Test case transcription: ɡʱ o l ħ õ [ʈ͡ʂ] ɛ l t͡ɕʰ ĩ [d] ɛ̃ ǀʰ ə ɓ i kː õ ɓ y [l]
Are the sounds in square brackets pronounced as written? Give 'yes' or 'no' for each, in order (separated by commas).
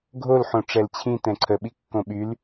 yes, no, yes